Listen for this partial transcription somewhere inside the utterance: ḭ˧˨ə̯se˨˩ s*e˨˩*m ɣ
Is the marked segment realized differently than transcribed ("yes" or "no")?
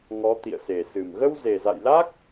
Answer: yes